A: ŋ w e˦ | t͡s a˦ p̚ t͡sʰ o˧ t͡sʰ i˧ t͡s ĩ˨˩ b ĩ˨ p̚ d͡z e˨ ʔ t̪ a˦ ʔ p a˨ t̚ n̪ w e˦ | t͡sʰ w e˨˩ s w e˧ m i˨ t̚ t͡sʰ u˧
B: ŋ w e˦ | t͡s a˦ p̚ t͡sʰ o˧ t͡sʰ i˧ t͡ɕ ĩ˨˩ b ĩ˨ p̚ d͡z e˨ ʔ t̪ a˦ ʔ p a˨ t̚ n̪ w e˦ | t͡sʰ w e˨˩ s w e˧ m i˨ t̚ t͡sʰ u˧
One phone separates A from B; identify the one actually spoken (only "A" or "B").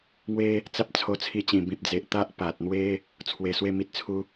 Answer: B